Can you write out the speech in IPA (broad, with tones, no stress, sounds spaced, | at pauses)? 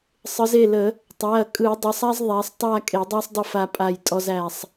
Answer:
sˤ ɯ˩˧ z e˩˧˩ l ə˧˩˧ | tˤ æ˩˧˩ ɐ̯ kʼ ɯ˧˩˧ dˤ ə˩˧˩ sˤ a˦ z ðˤ æ˩˧ sˤ tˤ a˦˨ kʼ e˧˩˧ dˤ æ˦ sˤ dˤ ə˦˨ f a˦ pʼ a˦˨ j tʼ ɔ˦ z æ˦˨ sˤ